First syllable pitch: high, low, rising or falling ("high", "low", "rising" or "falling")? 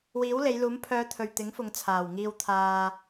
rising